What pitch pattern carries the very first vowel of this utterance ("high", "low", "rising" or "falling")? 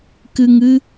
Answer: low